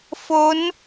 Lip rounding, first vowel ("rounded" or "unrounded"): rounded